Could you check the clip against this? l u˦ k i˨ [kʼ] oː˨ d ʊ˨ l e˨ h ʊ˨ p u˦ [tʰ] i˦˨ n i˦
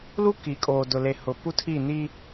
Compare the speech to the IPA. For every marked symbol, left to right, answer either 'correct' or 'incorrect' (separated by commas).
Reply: correct, correct